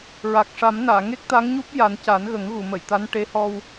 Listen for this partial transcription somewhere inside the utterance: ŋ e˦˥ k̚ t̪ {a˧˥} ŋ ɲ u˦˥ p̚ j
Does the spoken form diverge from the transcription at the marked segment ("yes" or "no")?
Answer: no